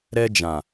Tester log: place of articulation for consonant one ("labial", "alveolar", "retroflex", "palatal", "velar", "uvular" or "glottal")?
alveolar